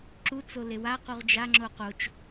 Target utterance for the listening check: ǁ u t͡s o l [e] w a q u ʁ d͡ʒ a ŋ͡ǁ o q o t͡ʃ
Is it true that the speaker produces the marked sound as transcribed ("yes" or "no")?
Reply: yes